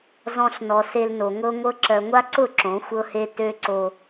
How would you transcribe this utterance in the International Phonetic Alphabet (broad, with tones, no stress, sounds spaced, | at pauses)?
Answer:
z ɔ̃˧ ɬ n ɔ˨ s e˧ l n o˨ ŋ ɤ˧ ŋʷ ɤ˧ ǁ ɜ˨ ŋʷ a˦ ǀ ʊ˦˨ ǁ õ˨˦ xʷ ɤ˦ h e˦ t ø˦ ǀ o˧